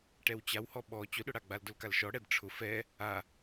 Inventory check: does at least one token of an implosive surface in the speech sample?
yes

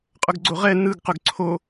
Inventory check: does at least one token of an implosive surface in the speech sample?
no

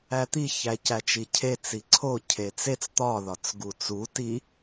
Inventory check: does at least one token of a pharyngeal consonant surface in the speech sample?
no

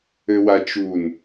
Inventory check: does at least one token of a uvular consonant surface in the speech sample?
no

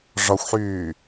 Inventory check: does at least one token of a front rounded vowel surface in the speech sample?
yes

